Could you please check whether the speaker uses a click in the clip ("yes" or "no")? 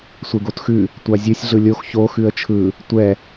no